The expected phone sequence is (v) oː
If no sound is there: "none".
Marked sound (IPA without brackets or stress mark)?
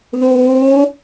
ð